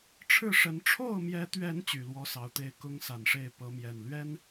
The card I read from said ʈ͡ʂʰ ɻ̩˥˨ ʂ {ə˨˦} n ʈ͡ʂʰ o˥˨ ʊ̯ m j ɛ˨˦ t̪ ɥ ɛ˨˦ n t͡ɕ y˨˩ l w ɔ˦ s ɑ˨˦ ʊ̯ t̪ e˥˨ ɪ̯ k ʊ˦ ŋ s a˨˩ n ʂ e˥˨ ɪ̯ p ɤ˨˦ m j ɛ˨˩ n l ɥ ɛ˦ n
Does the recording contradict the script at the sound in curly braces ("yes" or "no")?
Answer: no